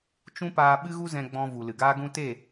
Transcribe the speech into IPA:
t͡ʃũ˦paː˧ ɓɨ˦ɣu˦ zɛ̃˧ ɡ͡bɔ̃˧ vu˨lɨ˨ɡaː˦ɡũ˦ te˦˨

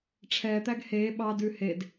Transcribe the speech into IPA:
ʈ͡ʂʰɛː t̪æɡheː ɓɑ dʉhed

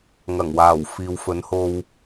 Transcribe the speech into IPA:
ŋɐ˨˩ŋwaː˨˩w fiː˨wfɵ˨˥nho˧w

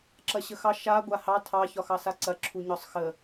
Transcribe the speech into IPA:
ǁɐɕəxɑ ʃa ɡʷahɑ tʰɑ çɒxɑsaǀɐ ǁʰuɲɒsˤxə

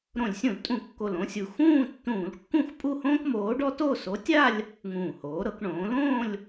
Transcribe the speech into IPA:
ɾõ˧˩˧lʲsʲũ˧˩˧l tʼũ˧˩˧kːo˨˩lõ˥˧sʲu˨˩ xũː˥˧tːũː˧˩˧lkːũ˥˧x pʼu˥˧hõː˥kmoː˨˥ɖɔ˥ to˥˧ so˨˥tʲa˥˧lʲ | ŋũː˨˩hoː˩˧ɾɤ˩˧k ɳõː˩˧lõː˥˧lʲ

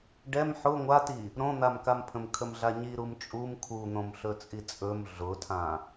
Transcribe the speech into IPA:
ɖɛm ħʊ ŋʷati | ɾõn̪amkampʰə̃m kʰəmɮaɲi ɾumt͡ʃʼum kʰun̪õmɬɵt͡sʼi t͡sʼɵm ɮʊtʰã

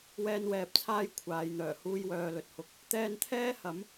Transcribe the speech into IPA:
wɛː˧nwɛː˨p̚t͡sʰaː˥j kʷʰaː˨˧jn̪œː˨˩ huː˧jwœː˨lɵ˨t̚hʊ˨˥k̚ | t̪ɛː˧nt̪ʰɛː˥hɐ˨˥m

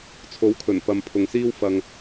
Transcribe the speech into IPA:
t͡sʰo˨˥wkʰɵ˨˩n pɐ˨mpʰʊ˨ŋsiː˥w fɐ˧ŋ

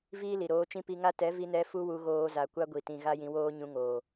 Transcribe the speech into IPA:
viː˦li˨ɾoː˧t͡ʃĩ˦ pi˧ŋa˦ tɛ˨˦vi˧nɛ˧ fu˦wu˧ɣoː˧za˨ kʷa˦ɡʷi˨tĩ˨ ɣa˦jĩ˧woː˦ ɲũ˧ŋoː˨

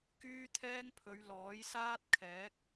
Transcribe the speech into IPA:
kyː˥t̪ʰɛː˥ŋpʰɵ˨˧ɥ lɔː˨˥jsaː˥t̚kʰɛː˨˥k̚

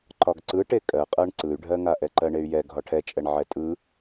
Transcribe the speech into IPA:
ǃɒɡǀɯ ʈekʼɜqʼɜɳ ǀɯy̯ɖʱɜŋa ʔɛǃɜɳey̯jɛ ɡʱɒʈʰɛt͡ʃʼɛɳ ʕɛtʼɯ

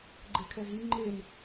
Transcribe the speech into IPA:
ɡ͡ǃekʰɛɦi ŋ͡ǃen

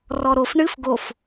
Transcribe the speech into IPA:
rɔɾof ɳɨf ɡof

